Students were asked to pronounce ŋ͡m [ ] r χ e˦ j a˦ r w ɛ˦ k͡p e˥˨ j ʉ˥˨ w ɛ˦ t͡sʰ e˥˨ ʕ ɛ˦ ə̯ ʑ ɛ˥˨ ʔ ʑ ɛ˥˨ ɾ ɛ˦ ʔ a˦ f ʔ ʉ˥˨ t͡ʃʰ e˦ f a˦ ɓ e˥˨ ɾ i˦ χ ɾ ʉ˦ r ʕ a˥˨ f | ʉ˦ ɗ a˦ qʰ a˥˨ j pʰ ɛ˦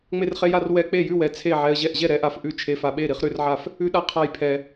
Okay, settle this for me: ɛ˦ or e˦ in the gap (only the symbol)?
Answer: e˦